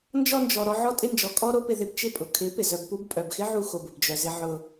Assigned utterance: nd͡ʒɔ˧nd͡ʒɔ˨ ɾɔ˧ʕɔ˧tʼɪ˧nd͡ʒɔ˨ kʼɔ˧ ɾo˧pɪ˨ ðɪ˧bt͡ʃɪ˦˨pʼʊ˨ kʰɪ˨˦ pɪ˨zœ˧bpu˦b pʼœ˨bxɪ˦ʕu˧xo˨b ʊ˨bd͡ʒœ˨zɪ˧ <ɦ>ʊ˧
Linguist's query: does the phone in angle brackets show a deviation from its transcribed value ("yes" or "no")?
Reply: yes